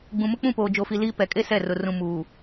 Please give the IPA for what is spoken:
ɡ͡b ũ˨ m ʊ˦ k͡p ũ˦˨ p oː˨ d͡ʒ o˨ f i˨ l iː˦ p ɛ˨ kʼ e˦ s ɛ˦˨ r ʊ˨ r ũ˨ m uː˨

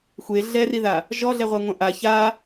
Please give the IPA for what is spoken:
xʷ e ɮ ɛ r i ð a | ʒ ɔ ɮ ɛ ʁʷ a ŋʷ ɐ̃ ʔ a ç a

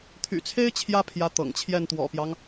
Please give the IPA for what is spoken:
t̪ʰ y̰˨˩ t͡sʰ e˥ ɪ̯ t͡ɕʰ j ä˥ pʰ j ä˧˥ t̪ ɤ̰˨˩ ŋ t͡ɕʰ j ɛ˥˩ n t̪ w ɔ̰˨˩ p j ɑ˦ ŋ

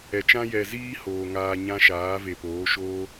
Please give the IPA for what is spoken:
ɛ˨ t͡ʃ ã˦ j ɛ˨ z iː˦ h oː˨ ŋ aː˧ ɲ ã˦ ʃ aː˨˦ v e˨ p oː˨˦ ʃ oː˦

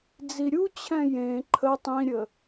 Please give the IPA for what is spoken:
d͡z i ɾʲ u t͡ɕʰ ɛ̃ j ẽ ǃʰ ə tˤ ĩ ɾʲ ə

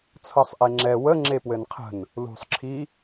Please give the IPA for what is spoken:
t͡sʰ ɤ sˤ ʔ e ŋ͡ǁ ɛ w ə ŋ͡ǁ e p w ɘ n qʰ ə̤ n | l ṳ sˤ ǁʰ i

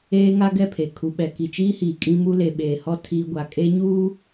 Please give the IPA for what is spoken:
eː˦ ŋ a˦ ɡ ɛ˦˨ pʰ e˨ kʰ u˨ ɓ ɛ˨ k i˨ t͡ʃ iː˦ h iː˨ kʼ ĩ˦ m u˦ l e˨ ɓ eː˨ h ɔ˦ tʰ iː˦ ɡʷ a˨ kʼ e˦ ɲ uː˦

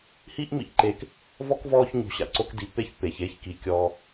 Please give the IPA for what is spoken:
h i˥ ʔ m ḭ˨ ʔ ǃ eː˨ k | v ɔ˥ k v ɔː˦ ç ɲ o̤˨ ɕ a̰˩ ǀ o˦ k d i˨ pː e˥ ç pː eː˩ ç eː˦ ç k i˩ kʲ ɔː˨

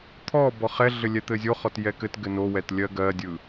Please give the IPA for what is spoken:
t̪ʰ ɔ b ɔ χ ɛ ɮ ɘ lʲ ɛ t̪ ɘ zʲ o χ ɔ t j ɛ k ɘ t ɡ ɘ n o w ɛ t lʲ ɜ ɡ ɜ dʲ ɯ

